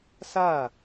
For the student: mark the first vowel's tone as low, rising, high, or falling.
falling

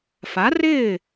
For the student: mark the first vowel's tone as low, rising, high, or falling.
rising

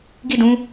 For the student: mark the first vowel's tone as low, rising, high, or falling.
falling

